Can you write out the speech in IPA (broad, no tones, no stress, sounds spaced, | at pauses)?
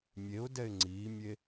mʲ e ʊ̯ d ɛ ɪ̯ ŋ͡ǀ iː mʲ e